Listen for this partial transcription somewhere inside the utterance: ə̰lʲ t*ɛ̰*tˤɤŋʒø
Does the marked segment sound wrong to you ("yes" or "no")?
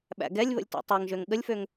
no